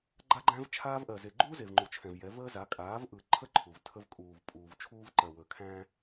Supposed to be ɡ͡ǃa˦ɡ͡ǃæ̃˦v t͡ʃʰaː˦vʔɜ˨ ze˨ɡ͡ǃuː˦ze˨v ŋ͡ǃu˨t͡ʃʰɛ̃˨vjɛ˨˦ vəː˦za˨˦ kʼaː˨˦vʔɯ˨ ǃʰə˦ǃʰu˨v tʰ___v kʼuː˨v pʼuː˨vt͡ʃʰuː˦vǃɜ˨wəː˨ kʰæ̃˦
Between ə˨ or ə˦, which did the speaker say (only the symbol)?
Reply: ə˦